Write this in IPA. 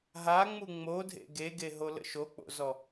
ɦ a ŋ͡m u ŋ͡m o dʱ ḛ ɡ e ɡ e ɦ o l ə̰ ʃ o k͡p o̰ z ɔ

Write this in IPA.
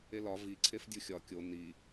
e l ɒ v i ǀʰ e f dʲ u xʲ ɒ kʲ o n i

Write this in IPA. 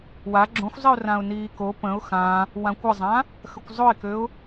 w a ɡ͡ǁ õ xʷ zˤ i ʊ̯ r ã ʊ̯ n iː k o p ə̃ ʊ̯ x ã | w ã kʷ ə zˤ ã | x ə kʷ zˤ o ɪ̯ k ø ʊ̯

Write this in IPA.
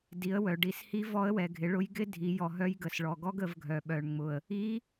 d i˩˧ ə̯ w œ˩ ɖ i˩˧ s h i˧˥ v ɔ˧˥ ə̯ w ɛ˩ ɡʱ ɪ˩˧ ɭ ʊ˧˥ j ɡ ɪ˥ dʱ i˩˧ j ɔ˩ ɦ œ˧˥ j ɡ ə˩ s ɭ ɔ˩ ɡ ɔ˥ ɡ ə˩˧ v ɡʱ œ˩ ɓ œ˩ ɳ ŋ͡m ʊ˩ ə̯ | i˧˥

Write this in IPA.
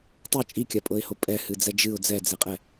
tˤ ɤ t͡ʃʼ i kʲ a pʼ ɤ ɪ̯ h o pʼ ɛ h ɨ d͡z ɛ d͡ʒ ɨ ʊ̯ d͡z ɛ d͡z e qʼ ɛ

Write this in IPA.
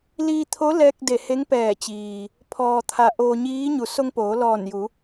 l iː˧ t̪ʰ o˧˥ l ɛː˧ k̚ d e˧˩ h e˧˥ ŋ p ɛː˧˩ t͡ɕ iː˩ | pʰ ɔː˩ t̪ʰ a˩ ʔ oː˧ ɲ iː˧˥ ɲ u˩˧ s o˧ ŋ p oː˩˧ l ɔː˧˩ n j u˩˧

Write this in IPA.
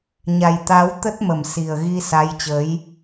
ɲ a˨˩ j t̪ a˨˦ w t̪ ə˦˥ t̚ m ə˧˩ m s i˨˩ ə̯ ɣ i˧ s a˨˦ j t͡ɕ ə˨˦ j

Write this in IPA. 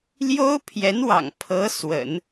l j o˥ ʊ̯ pʰ j ɛ˧˥ n w ɑ̰˨˩ ŋ pʰ ɤ˧˥ s w ə̰˨˩˦ n

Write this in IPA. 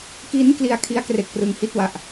k i˦˥ n k l i˧ a̯ kʰ i˦˥ a̯ k r e˨˩ k̚ p r ɯ˧ ŋ h i˥˩ t̚ w a˨˩ ʔ

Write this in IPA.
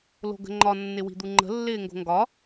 l o̤ ɡ ə̤ ŋ͡ǃ ɒ nː ɪ w i̤ d̪ u ŋ͡ǃ ə̤ lː ɪː ŋ ɡ o̤ ŋ ɡ ɒ

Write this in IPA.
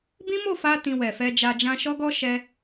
b ĩ˦ m o˦˨ f a˧ t ĩ˧ w ɛ˨ f ɛ˧ d͡ʒ a˧ d͡ʒ ã˧ ʃ ɔ˦ ɡ ɔ˦ ʃ ɛ˧

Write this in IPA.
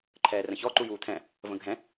ǃʰ ɛː r ə̃ ç ɔ ǃ u j uː t̪ʰ ɛ̃ | v ə̃ ɡʱ ɛ̃

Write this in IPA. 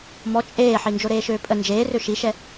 m ɔ t͡ʃʼ eː ħ i n d͡ʒ o ɾ eː ʃ øː pʼ ə n d͡ʒ eː r ø ʃ i ʃ ɛ

